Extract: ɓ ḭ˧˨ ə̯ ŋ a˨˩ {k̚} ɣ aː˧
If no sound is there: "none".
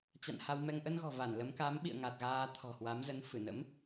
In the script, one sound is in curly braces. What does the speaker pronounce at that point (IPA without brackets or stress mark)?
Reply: t̚